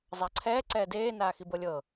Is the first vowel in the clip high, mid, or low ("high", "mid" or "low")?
low